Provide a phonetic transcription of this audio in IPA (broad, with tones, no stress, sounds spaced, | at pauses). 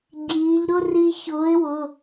ɟ iː˩˧ ʎ ɾ ʊ˥ r i˧ ç ʊː˨˥ ɪ̯ w ʊ˩˧˩